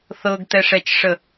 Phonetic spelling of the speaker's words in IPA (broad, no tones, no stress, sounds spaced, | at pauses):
θ ɤ ɡ t̪ ɛ ʂ ɛ t͡ʃ ʂ ə